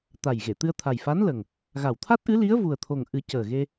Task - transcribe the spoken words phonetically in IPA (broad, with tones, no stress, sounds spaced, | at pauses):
t̪ a˨˩ j ɣ e˨˩˨ t̪ ɨ˧ ə̯ t̪ʰ a˨˩ j f a˧˥ n l ə˨˩ ŋ | ɣ a˨˩ w t̪ʰ a˦˥ t̚ ʔ ɨ˧˥ l i˧˥ ə̯ v u˨˩ ə̯ t̪ʰ o˨˩ ŋ ʔ ɨ˨˩˦ c əː˨˩ ɣ e˧